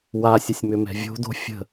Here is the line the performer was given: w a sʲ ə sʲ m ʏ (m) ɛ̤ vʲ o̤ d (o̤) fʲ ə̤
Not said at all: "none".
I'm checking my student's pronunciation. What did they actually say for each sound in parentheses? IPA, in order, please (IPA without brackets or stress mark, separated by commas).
m, o̤